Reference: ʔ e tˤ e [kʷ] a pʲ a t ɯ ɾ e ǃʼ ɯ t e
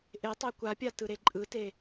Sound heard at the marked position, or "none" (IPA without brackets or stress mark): kʷ